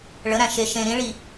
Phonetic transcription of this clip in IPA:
ɭəɾæ̃ ʃeʃẽ ɾĩɭi

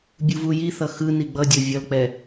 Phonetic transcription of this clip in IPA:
bʲuvujiθʌ xɯ niɡ͡bʌdʲo vʲʌlk͡pɛ

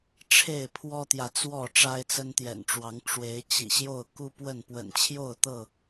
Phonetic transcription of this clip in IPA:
ʈ͡ʂʰe˥˨ɪ̯pʰwɔ˦t̪jä˨t͡swɔ˥˨ ʈ͡ʂa˦ɪ̯t͡sə˦nt̪jɛ̰˨˩nʈ͡ʂwɑ˨˦ŋ ʈ͡ʂwe˨˦ɪ̯ t͡ɕḭ˨˩ɕjo˥˨ʊ̯ ku˦pwə˥˨n pwə̰˨˩nt͡ɕʰjo˥˨ʊ̯t̪ɤ˥˨

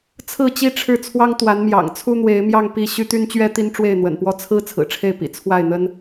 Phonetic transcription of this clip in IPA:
t͡sʰɹ̩˥˩t͡ɕi˥ʈ͡ʂʰɻ̩˥˩ t͡sʰwɑ˥ŋt̪wa˧˥nmjɑ̰˨˩ŋ t͡sʰu˥n̪we˧˥ɪ̯mjɑ˥˧ŋ pi˥˩ ɕy˥t̪y˥nt͡ɕɥɛ˥ t̪i˥nʈ͡ʂwe˥˩ɪ̯n̪wə̰˨˩npwɔ˥ t͡sʰɹ̩˥ t͡sʰɹ̩˨˩ʈ͡ʂʰe˥˩ɪ̯pḭ˨˩ t͡sʰwa˥˩ɪ̯n̪ə˥n

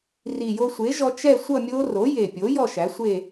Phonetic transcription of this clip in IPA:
ri˨˩jo˧sʷe˩˥ʒɔ˧ t͡ʃɛ˥˧sʷʌ˥˧mʲo˦˥ ro˩˥je˨˩pʲo˩˥ jɔ˥˧ʃæ˩˥sʷe˥˧

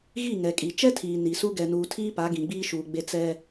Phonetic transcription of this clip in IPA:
ɣi˦˨ŋɛ˨kʼi˨ t͡ʃɛ˦tʰiː˨ ni˨su˦ ɡɛ˨nuː˨tʰiː˦ pa˨˦ ɡĩ˨ɡ͡biː˦ʃuː˨ɡ͡be˦ t͡sɛ˦

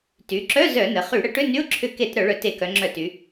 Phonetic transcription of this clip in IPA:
ty˩˧ǁœ˧˥˧ zœ˧˩˧nə˩˧χy˧˩˧ ɽə˧˩˧ʈʏ˧˥˧ ny˧˥˧ʊ̯ǁʰʏ˧˩˧ke˧˩˧t ɾœ˧˩˧ɭœ˧˩˧te˧˩˧kœ˩˧ ŋ͡ǁœ˧˩˧ty˩˧

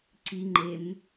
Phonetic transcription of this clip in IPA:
ǀiŋ͡ǃem

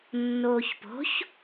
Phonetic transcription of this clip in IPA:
nːoːçpo̤ç

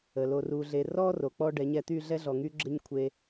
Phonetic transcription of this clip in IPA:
ə˨lo˧ru˧ɮe˧ rɔ˦ro˨ k͡pɔ˦ ɖɛ˨˦ɲɛ˧ t̪y˦˨ɮɛ˦ɮɔ˨ ŋy˦ɡ͡ǁə˦ɲ kʷʰe˧

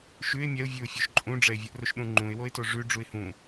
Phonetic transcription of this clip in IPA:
ʃʉɪ̯ mʲɛʊ̯vʲʉʊ̯ fʲoʃǃʼũɖ͡ʐɛɪ̯ vʲɨʔroʃɗũŋ͡ǃũɪ̯ woɪ̯toʐʉ ɖ͡ʐuɪ̯hũ

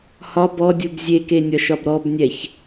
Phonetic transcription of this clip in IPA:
hɒ bɔdʲub zʲekenʲɒʃɒb ɾɔbnʲɛç

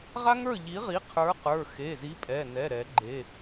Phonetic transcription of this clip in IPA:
ʁa˥ŋə˞˥˨ʎi˨˥ʁi˨˥ qʰə˞˨˥qə˞˩˧˩ xe˩˧˩zi˨˥ pʼɛ˩˧˩nɛ˩˧˩ ɾɛ˨˩˦ɡ͡ǃe˩˧˩

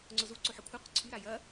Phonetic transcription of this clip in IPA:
ŋ͡ǀʊzu ǀoħɐkʷʰɐqʷɪ ǀʰyɾa jɐ

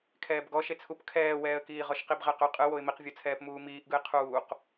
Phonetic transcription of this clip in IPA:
kʰɛːbɡɔ ʃet͡sʰup kʰɛːwɛːə̯kiːʁɔʃ qibʁɛqɵ qʼɯ woɪ̯miqvʲot͡sʰɛːp muːmiːʔɡɯɪ̯ qʰuːq

